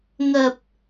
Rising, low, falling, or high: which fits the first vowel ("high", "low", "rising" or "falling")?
low